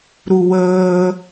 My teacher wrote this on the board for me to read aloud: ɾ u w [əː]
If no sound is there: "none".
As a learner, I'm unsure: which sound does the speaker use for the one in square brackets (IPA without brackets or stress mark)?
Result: əː